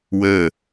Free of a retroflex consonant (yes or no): yes